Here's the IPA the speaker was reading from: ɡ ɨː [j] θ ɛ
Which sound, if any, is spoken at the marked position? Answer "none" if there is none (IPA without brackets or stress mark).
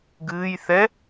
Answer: j